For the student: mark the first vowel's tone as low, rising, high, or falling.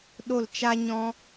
falling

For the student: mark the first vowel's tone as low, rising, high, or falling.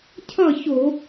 falling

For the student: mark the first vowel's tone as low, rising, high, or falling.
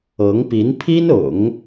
rising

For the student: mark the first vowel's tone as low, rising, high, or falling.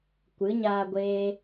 rising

